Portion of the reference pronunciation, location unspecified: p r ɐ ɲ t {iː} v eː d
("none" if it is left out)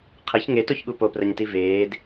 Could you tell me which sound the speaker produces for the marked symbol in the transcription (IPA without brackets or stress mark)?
i